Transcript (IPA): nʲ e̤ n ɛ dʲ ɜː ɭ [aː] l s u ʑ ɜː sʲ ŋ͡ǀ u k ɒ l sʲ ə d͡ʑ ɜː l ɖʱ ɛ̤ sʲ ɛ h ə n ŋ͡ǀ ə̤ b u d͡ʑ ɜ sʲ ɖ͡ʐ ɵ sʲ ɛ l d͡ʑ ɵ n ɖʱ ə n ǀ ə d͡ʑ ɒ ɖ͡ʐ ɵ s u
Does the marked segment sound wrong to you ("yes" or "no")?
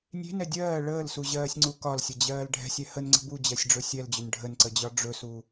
yes